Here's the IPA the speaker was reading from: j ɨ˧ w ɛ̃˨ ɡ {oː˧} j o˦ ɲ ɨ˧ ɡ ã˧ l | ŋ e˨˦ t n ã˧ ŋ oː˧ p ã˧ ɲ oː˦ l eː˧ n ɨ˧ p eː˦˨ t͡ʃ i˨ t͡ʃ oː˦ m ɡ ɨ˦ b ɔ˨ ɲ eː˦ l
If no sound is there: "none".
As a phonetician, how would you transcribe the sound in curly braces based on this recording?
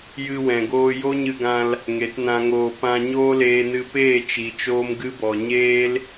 oː˧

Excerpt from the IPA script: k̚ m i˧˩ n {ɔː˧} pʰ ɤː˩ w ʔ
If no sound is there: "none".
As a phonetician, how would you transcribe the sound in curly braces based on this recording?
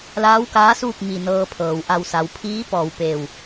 ɤː˧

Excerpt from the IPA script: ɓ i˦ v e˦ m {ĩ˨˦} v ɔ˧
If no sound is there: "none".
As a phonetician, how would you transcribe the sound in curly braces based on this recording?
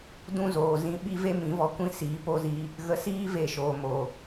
ĩ˨˦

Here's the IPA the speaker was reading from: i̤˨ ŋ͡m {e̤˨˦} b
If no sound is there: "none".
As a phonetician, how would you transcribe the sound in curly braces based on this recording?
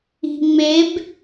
e˨˦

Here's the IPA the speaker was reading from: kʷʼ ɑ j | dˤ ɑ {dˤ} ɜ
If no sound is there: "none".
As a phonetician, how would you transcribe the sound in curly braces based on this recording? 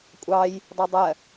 dˤ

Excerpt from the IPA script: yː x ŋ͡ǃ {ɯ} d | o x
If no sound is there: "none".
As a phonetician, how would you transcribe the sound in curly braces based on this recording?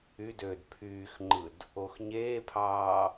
ɯ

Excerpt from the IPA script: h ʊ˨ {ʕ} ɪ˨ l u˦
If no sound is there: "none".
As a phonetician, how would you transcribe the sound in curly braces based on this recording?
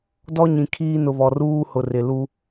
r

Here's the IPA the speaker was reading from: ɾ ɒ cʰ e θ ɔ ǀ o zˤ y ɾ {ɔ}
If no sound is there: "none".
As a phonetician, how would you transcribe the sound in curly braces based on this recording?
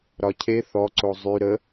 ə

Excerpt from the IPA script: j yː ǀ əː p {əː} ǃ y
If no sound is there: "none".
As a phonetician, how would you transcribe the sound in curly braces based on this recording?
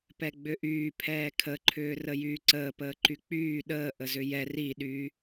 əː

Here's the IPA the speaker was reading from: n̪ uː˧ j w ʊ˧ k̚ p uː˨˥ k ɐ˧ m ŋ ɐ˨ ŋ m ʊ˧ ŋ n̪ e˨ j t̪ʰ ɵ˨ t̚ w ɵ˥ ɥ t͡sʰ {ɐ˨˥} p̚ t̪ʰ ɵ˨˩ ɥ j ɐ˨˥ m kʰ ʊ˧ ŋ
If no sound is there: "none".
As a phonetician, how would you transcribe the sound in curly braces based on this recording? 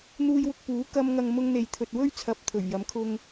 ɐ˧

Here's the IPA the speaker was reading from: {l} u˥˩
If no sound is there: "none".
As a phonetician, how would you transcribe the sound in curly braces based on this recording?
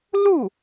l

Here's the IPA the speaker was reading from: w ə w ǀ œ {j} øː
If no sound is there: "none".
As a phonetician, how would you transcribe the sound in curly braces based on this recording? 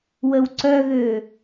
ɣ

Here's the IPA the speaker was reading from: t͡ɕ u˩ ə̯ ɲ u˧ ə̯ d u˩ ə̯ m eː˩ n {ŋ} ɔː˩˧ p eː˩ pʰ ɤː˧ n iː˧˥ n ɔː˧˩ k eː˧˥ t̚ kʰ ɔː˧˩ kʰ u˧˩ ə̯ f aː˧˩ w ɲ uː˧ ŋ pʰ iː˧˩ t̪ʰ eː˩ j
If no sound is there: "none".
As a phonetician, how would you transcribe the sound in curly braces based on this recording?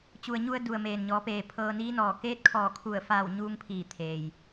ɲ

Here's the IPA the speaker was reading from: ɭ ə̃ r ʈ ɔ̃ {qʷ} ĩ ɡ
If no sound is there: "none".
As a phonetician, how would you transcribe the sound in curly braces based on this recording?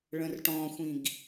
xʷ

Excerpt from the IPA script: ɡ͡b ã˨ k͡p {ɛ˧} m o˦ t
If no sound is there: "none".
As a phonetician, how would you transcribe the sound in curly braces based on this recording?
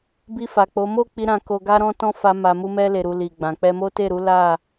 ɛ˧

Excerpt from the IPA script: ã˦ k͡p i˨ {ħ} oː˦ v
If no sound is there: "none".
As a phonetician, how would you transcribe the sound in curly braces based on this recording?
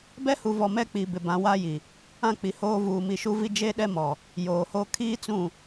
h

